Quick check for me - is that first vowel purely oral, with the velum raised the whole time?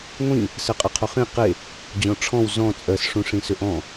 no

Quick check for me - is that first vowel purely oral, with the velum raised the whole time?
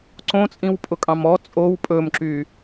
no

